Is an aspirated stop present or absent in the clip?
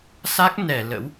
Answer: absent